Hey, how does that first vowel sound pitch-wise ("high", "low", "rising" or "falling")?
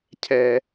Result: high